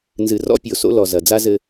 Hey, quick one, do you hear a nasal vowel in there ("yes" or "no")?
no